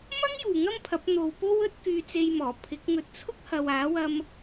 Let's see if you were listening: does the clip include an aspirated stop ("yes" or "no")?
yes